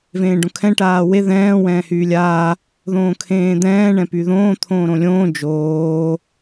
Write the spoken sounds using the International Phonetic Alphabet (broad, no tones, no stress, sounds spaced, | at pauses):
v ẽː ɖ õ kʰ ɛ̃ ʈ aː w e ð ɛ̃ː w ɛ̃ː h yː lʲ aː | ð õː kʰ ẽː d̪ ɛ̃ː ɳ ɛ̃ p y ð õː t̪ʰ õː ɾ õ lʲ õː d͡ʒ oː